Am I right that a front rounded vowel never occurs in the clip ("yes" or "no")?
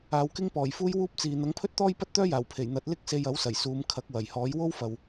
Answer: no